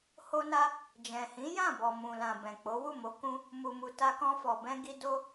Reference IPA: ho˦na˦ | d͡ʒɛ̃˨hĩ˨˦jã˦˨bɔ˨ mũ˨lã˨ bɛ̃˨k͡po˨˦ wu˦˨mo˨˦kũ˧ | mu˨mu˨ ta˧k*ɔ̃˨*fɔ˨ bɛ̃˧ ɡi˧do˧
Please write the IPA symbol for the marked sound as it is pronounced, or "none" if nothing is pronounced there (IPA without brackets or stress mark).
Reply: ɔ̃˧